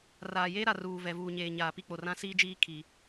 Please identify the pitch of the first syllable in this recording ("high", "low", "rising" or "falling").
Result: low